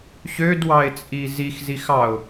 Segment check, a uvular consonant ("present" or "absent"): absent